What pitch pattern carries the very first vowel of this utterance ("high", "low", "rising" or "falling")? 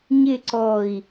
falling